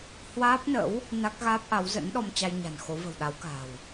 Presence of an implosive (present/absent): present